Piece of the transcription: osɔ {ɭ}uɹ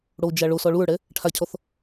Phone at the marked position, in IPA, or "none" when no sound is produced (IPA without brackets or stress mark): ɭ